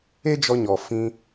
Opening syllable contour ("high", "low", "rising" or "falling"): high